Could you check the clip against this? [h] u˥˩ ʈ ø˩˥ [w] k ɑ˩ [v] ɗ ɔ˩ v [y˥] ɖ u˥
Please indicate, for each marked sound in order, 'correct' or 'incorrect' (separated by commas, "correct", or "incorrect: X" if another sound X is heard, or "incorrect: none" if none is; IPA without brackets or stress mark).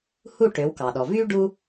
correct, correct, incorrect: none, correct